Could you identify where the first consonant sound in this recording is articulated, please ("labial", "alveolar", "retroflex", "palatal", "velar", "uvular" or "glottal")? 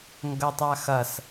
velar